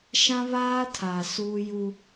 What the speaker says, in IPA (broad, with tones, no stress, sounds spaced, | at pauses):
ʃ ã˦ β aː˦ tʰ aː˨ s uː˦ j u˦